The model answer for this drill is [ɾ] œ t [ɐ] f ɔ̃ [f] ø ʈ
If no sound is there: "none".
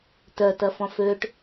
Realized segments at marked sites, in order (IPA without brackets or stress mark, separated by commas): t, ɐ, f